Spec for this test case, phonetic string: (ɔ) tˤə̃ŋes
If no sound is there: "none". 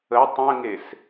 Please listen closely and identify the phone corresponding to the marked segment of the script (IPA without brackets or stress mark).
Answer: ə